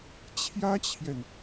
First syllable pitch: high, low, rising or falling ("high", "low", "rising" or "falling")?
high